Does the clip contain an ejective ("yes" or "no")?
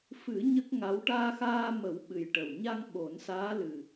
no